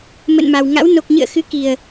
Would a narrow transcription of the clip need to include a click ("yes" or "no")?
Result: no